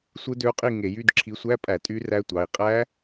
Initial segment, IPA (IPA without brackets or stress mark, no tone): sʷ